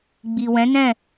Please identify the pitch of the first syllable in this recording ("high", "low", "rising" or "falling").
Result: low